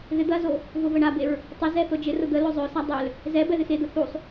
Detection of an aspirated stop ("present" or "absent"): absent